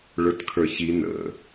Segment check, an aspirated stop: present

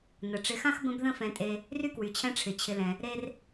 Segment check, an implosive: absent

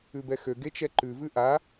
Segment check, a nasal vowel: absent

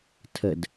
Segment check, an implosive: absent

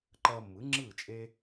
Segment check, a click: present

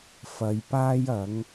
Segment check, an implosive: absent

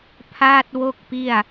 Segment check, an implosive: absent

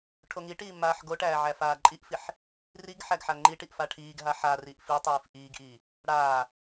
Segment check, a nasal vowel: absent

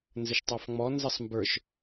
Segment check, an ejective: absent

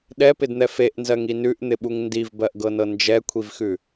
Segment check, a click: absent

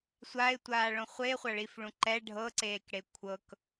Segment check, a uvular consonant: present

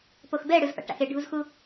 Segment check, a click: absent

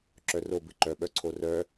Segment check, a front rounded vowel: present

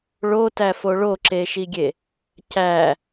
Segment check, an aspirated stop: absent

